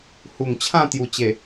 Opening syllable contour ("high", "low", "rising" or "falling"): low